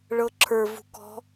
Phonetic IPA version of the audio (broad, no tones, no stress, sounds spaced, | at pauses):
ɭ ɤ ǁʰ ə˞ v ṳ k ɔ̤